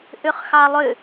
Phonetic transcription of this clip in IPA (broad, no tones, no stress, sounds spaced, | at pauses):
ʔ ʏ χ x ɑ lˠ ʏ